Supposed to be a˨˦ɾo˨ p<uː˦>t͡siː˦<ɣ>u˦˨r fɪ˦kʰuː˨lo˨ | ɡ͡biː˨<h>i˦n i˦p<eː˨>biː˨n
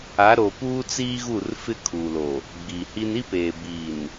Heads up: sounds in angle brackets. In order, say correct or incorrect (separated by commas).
correct, correct, correct, correct